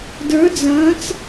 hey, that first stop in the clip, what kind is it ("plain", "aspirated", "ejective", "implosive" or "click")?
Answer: plain